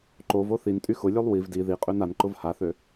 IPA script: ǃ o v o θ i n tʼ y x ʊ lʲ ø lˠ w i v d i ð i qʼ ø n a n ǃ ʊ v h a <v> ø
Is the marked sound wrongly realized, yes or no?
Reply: yes